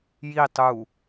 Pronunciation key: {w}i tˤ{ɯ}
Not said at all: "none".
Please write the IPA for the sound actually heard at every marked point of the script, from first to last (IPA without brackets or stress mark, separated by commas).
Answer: j, u